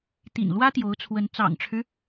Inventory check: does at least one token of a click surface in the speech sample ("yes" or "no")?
no